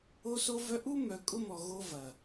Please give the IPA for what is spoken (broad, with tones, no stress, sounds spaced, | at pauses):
o˦ s o˦ v œ˦ ʔ u˦ m œ˨ kʼ ʊ˦ m ɔ˨ ɣ o˦ v ɐ˨